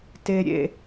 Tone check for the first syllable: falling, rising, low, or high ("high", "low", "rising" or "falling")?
low